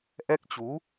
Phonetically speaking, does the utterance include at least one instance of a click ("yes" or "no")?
no